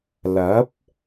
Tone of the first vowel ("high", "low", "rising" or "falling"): rising